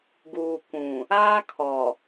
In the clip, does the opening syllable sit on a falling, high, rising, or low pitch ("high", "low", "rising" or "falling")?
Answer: low